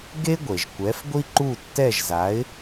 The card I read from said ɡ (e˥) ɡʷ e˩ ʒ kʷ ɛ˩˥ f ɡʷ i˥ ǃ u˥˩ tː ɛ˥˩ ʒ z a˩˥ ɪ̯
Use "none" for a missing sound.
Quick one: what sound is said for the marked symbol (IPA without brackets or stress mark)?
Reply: e˥